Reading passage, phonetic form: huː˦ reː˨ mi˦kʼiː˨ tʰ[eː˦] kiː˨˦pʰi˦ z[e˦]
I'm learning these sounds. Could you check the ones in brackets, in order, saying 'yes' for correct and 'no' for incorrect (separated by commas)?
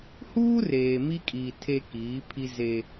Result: no, yes